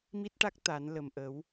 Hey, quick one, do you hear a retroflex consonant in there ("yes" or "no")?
yes